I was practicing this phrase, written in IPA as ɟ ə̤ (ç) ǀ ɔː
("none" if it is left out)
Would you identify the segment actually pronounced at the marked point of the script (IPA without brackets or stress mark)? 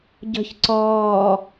ç